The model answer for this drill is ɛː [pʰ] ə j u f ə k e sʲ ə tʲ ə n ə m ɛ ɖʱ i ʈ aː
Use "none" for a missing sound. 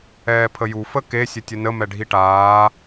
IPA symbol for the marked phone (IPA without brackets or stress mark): pʰ